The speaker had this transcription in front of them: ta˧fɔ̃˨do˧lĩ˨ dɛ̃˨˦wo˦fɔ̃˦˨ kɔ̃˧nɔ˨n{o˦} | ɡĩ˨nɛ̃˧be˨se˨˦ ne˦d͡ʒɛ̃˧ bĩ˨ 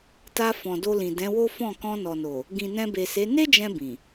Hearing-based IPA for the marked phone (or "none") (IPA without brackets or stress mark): o˨